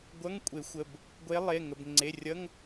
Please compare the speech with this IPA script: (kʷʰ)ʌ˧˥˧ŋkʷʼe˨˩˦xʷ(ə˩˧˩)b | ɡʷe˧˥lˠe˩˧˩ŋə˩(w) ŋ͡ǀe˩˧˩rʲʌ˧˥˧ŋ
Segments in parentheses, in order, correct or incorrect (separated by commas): incorrect, correct, incorrect